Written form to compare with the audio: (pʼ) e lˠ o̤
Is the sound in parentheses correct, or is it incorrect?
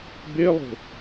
incorrect